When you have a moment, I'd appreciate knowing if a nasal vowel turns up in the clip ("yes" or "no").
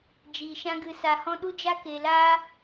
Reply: yes